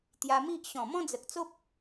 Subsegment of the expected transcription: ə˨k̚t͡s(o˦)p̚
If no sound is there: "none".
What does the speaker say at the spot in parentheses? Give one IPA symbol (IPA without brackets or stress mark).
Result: o˦